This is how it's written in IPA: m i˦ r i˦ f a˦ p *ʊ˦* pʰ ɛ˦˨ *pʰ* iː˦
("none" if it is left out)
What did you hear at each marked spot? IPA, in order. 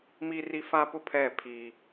ʊ˦, pʰ

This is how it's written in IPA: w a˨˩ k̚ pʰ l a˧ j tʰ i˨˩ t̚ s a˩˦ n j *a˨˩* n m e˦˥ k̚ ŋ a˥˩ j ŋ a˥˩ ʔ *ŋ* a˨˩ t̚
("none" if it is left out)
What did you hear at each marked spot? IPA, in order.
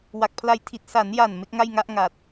a˨˩, ŋ

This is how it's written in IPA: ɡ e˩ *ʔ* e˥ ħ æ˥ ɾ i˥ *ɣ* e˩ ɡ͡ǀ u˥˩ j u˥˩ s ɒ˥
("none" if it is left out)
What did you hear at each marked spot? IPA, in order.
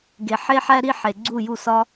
ħ, ħ

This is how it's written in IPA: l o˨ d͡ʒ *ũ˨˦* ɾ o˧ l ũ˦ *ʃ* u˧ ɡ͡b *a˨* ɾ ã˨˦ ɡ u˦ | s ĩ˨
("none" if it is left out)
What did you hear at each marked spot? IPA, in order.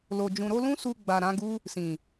ũ˨, s, a˨

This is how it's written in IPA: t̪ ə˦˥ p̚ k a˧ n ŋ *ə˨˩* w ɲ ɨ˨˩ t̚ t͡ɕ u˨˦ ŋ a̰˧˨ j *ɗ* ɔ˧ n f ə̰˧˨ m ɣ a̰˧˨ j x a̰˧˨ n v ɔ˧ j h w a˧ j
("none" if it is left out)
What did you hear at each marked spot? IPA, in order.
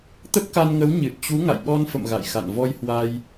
ə˨˦, ɓ

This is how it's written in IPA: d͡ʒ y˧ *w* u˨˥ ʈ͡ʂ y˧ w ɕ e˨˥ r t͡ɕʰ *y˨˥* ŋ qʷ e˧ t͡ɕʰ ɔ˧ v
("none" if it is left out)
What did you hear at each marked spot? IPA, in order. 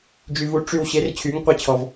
v, y˨˥

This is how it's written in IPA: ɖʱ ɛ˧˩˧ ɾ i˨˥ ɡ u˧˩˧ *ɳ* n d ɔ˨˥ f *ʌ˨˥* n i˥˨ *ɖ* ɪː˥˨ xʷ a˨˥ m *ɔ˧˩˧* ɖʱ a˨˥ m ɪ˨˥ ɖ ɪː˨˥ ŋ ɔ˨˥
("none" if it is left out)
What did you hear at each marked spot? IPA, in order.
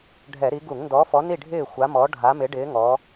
ŋ, ɔ˨˥, ɖʱ, ɔ˨˥

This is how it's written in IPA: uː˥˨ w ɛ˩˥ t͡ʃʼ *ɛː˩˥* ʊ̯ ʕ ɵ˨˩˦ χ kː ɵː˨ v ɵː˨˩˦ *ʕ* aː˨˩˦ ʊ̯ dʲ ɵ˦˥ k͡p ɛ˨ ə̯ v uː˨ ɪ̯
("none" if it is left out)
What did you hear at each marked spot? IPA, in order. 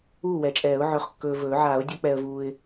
ɛː˨˩˦, ʕ

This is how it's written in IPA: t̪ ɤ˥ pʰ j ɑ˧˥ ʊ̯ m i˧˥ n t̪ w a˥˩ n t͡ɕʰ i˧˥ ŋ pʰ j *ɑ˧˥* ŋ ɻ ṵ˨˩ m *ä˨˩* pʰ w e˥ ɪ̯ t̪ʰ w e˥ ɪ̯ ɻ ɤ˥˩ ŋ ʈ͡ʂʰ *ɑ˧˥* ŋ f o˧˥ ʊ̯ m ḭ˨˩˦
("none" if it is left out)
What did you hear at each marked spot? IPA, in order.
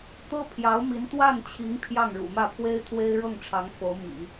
ɑ˥˩, ä˥˩, ɑ˧˥

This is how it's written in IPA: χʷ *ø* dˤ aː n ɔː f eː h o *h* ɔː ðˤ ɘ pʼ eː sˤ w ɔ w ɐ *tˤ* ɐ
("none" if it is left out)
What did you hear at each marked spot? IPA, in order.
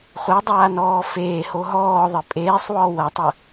ɘ, ɦ, tˤ

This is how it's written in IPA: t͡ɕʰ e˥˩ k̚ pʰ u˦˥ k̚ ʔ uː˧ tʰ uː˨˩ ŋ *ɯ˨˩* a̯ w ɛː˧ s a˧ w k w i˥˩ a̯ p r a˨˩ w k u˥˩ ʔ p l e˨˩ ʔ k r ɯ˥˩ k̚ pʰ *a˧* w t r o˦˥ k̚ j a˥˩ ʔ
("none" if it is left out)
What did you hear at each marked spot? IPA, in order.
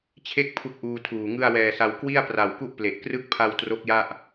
ɯ˥˩, a˧

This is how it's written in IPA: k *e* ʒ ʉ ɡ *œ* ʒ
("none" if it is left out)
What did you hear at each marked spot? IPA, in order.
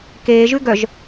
eː, œ

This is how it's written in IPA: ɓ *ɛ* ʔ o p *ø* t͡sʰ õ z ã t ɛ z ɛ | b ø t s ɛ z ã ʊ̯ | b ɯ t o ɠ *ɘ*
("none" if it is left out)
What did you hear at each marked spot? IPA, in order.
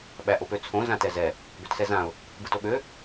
æ, ø, ø

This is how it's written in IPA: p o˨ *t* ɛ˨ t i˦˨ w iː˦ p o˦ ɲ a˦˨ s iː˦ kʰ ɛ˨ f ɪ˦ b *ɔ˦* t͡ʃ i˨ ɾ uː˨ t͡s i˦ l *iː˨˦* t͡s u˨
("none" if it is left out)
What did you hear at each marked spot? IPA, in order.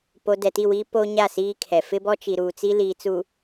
d, ɔ˦, iː˨

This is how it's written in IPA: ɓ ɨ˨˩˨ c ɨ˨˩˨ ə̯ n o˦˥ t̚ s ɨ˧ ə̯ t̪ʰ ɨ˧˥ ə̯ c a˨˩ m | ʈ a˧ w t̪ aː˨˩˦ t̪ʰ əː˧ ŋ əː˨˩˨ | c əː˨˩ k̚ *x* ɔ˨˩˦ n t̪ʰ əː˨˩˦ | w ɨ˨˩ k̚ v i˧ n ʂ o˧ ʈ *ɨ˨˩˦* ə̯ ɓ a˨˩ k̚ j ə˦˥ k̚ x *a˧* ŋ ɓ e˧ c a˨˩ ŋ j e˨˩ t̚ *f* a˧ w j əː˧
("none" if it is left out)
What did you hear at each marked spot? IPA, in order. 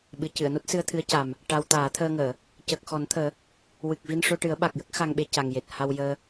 x, ɨ˨˩˦, a˧, h

